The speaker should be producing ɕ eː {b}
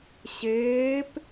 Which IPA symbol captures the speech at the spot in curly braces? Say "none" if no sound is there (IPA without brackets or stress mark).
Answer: p